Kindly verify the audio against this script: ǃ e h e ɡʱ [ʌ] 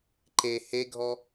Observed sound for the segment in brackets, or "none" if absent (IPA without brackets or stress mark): ɔ